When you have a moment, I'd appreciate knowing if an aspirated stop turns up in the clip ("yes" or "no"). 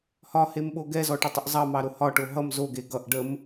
no